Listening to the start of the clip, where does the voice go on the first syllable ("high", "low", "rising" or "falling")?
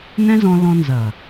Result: high